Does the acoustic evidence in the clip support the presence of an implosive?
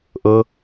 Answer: no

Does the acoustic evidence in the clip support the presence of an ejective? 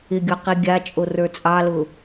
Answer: yes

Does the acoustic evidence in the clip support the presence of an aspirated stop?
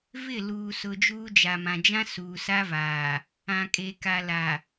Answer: no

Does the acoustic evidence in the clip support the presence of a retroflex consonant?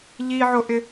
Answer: no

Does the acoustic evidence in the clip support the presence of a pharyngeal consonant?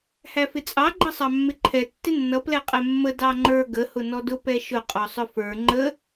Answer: no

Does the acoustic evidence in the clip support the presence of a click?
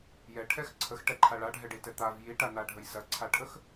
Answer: yes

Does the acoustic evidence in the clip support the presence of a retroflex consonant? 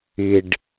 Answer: yes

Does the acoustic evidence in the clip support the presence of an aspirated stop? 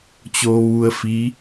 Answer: no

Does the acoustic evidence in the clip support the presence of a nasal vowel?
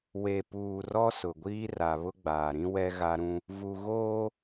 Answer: yes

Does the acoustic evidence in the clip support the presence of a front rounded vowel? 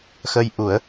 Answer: no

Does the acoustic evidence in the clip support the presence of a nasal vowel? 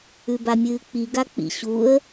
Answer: no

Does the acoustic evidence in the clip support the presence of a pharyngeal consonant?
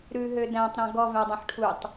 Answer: yes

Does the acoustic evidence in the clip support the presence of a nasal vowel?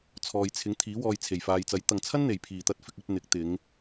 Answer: no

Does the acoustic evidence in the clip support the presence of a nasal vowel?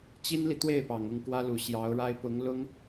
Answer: no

